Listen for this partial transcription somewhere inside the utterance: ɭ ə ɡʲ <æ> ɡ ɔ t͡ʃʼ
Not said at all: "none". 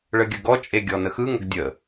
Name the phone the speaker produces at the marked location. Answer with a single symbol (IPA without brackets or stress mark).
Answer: ə